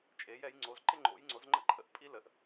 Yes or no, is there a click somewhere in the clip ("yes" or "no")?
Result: yes